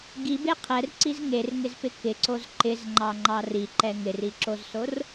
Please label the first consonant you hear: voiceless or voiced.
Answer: voiced